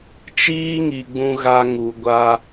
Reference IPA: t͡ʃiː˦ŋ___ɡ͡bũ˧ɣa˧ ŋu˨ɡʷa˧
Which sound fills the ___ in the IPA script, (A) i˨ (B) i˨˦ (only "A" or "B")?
A